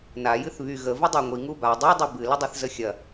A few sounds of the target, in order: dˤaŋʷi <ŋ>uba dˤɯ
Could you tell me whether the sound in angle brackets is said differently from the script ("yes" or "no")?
no